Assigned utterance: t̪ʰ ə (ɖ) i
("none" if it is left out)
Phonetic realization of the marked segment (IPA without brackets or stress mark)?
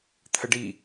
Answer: ɖ